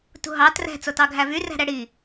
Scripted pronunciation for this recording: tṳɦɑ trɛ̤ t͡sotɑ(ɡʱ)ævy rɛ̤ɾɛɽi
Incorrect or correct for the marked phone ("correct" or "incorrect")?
correct